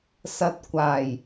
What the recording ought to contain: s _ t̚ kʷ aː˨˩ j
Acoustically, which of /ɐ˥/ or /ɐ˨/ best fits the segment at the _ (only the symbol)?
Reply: ɐ˨